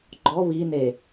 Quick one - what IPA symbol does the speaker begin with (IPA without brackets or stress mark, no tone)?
ɡ͡ǃ